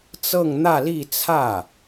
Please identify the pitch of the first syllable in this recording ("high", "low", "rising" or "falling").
falling